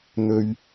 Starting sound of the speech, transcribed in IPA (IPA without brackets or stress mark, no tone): n̪